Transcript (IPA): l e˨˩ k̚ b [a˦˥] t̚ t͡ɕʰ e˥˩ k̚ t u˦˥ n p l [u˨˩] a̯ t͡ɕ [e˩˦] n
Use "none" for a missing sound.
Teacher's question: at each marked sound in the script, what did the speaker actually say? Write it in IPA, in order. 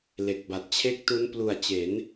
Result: a˨˩, u˨˩, e˩˦

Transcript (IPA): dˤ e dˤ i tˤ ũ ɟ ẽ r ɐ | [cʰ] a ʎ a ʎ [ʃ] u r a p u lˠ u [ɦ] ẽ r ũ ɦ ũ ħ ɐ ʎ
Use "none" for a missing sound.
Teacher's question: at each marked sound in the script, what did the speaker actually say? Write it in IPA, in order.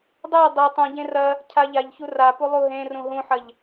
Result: cʰ, ç, ɦ

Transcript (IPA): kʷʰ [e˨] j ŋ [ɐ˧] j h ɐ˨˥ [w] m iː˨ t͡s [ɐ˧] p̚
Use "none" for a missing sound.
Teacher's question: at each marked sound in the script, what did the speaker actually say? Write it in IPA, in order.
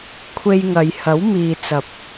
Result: e˧, ɐ˨˧, w, ɐ˨

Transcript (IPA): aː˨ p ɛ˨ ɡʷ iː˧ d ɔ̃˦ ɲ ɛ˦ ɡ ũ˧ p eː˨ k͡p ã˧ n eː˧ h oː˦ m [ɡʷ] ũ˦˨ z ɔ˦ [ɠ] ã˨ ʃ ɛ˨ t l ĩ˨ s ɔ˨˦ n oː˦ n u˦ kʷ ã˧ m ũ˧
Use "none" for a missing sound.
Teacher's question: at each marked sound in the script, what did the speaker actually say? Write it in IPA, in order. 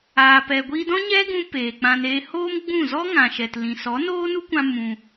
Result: ɡ͡b, ŋ

